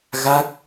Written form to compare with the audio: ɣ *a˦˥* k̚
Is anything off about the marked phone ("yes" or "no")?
no